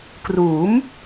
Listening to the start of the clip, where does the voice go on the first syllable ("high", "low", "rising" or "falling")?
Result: rising